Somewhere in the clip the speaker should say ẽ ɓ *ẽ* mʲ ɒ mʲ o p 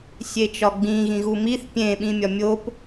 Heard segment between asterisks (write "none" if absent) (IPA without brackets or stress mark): ĩ